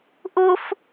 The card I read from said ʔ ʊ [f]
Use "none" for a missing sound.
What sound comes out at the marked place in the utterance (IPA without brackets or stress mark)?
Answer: f